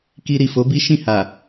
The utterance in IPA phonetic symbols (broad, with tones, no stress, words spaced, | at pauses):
ki˧ɾi˨fo˨˦bi˦ ʃĩ˦˨ha˨